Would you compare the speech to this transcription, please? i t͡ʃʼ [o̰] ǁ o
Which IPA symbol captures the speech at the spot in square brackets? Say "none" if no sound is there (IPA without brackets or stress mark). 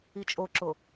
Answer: o